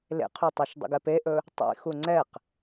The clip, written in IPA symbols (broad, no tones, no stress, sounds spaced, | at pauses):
l ḛ qʰ u tˤ o ʃ dˤ ṵ ɡ ɛ p e ʔ ɵ | tˤ ḭ x u ŋ͡ǀ ɛ q